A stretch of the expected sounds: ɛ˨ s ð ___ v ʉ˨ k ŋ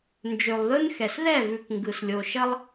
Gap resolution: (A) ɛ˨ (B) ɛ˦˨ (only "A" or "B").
B